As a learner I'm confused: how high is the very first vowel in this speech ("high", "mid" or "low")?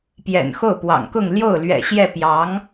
mid